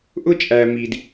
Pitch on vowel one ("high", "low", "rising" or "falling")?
high